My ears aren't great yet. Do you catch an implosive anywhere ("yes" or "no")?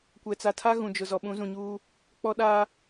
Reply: yes